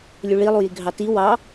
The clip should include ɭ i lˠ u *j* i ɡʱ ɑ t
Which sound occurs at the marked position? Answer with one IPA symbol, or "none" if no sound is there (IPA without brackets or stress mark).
j